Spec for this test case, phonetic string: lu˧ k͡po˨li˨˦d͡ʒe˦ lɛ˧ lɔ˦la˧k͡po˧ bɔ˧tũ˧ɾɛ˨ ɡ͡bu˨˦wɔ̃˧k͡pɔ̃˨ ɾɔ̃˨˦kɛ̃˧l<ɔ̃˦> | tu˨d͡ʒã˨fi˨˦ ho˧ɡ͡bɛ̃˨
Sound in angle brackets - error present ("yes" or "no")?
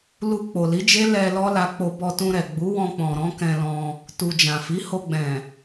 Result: yes